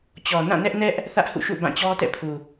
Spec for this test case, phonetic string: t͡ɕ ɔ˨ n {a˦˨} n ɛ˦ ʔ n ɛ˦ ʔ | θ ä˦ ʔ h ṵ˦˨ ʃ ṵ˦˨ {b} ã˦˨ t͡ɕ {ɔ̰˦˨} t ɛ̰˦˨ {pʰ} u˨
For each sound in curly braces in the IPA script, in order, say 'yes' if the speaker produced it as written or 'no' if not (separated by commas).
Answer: no, yes, no, yes